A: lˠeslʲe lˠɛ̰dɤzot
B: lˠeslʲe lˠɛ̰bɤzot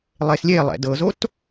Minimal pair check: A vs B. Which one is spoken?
A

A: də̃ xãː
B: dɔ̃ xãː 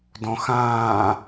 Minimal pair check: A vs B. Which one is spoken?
B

